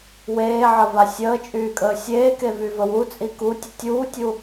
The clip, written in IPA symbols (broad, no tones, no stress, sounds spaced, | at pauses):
w eː ʕ ə v a sʲ əː t͡ʃʼ yː kʼ əː sʲ eː k e v y v ə w u t͡sʼ i k u tʲ ə tʲ uː tʲ u